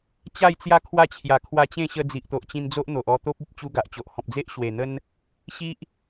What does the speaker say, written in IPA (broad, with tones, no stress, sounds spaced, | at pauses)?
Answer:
t͡ɕ a˥˧ j t͡s j a˦ kʰ w a˥˧ t͡ɕʰ j a˨˩ kʰ w a˧ t͡ɕ ẽ˥˧ ɕ ə˧ d͡z i˨ ʔ t̪ o˨ ʔ t͡ɕ ĩ˧ n d͡z o˦ ʔ n̪ o˨ ʔ ɔ˧ t̪ o˦ p̚ i˨ p̚ t͡ɕ u˦ ɡ a˨ ʔ t͡ɕ o˨ ʔ h ɔ̃˨ p̚ d͡z e˦ ʔ ɕ w e˨˩ n̪ ə˦ n | ɕ i˦ ʔ